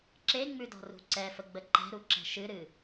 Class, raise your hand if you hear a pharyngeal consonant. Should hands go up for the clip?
no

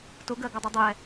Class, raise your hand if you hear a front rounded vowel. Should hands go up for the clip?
no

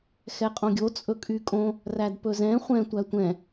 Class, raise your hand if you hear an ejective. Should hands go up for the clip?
yes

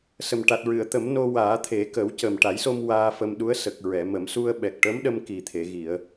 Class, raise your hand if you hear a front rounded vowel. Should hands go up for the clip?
no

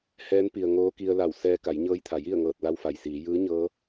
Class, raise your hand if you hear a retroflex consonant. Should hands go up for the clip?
no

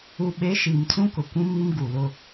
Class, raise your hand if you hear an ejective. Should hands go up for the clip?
no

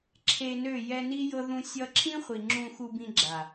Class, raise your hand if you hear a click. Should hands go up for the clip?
yes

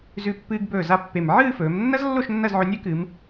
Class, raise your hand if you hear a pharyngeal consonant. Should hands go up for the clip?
yes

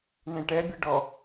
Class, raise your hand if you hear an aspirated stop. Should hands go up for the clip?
no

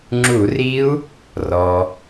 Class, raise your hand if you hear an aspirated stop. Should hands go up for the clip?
no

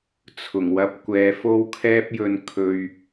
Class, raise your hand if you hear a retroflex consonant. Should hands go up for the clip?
no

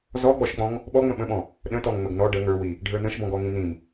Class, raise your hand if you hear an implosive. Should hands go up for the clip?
yes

